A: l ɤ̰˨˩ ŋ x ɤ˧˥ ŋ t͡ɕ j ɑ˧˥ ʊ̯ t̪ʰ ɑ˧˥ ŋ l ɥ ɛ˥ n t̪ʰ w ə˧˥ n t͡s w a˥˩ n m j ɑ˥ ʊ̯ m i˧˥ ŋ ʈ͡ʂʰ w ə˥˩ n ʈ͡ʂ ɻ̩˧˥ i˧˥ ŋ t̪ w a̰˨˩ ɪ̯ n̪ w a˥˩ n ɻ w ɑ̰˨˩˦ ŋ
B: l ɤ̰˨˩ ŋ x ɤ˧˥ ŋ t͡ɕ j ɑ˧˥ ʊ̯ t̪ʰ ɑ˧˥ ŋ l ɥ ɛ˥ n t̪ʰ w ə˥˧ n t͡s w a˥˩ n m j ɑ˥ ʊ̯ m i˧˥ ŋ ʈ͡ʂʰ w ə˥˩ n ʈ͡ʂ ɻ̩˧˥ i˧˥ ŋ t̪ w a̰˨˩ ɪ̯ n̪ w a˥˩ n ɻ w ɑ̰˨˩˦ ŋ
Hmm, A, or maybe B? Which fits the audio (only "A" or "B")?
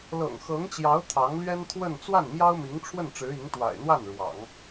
B